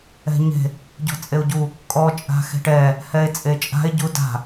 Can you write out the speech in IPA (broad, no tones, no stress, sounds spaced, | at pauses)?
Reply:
ɛ̤ ɲ e̤ | ɟ ɔ̤ t͡sʼ e o̯ ɟ u | kʼ ɔ t͡ʃʼ a̤ x e̤ ʈ ɛ | h ɛ e̯ t͡sʼ e t͡ʃʼ a̤ e̯ ɟ u d a̤